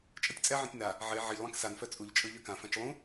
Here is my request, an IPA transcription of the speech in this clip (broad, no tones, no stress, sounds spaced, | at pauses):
t͡ʃʼ ɤ tʲ t͡sʼ ɛ ʕ œ̃ tʲ n a | ʕ ɘ ɪ̯ ʕ ɘ ʎ lˠ ɛ̃ k s a n f œ t͡sʼ u ʎ t͡ʃʼ ɤ ʎ œ k ã f ã t͡ʃ lˠ ũ